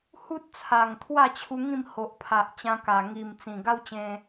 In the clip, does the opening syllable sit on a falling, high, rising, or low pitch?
high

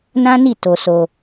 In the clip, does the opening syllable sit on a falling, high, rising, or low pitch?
high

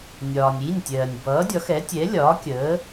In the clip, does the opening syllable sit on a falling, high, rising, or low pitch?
low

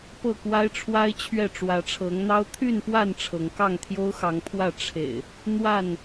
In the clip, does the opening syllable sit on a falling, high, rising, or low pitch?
falling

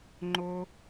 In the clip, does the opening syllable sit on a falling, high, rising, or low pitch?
high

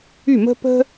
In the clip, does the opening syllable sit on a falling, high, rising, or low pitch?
falling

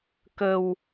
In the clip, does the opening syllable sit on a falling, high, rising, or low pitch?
low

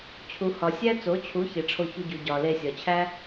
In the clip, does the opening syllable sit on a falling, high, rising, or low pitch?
low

